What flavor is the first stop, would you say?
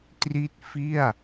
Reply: plain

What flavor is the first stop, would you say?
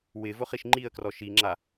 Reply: click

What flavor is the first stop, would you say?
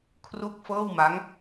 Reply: aspirated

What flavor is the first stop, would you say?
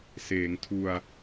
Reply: aspirated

